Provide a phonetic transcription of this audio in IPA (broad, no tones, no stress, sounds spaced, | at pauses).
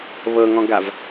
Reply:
β ɤ ŋ ɔ̃ ɡ a v